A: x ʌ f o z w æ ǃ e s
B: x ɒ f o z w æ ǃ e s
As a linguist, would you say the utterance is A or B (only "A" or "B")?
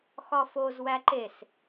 B